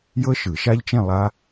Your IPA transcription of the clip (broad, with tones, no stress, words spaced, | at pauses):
jɤ˦˥ʃɯ˨˩˦ʃa˦˥ʎt͡ʃẽ˥˧ lˠa˦˥